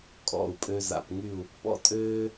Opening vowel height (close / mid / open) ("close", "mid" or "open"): mid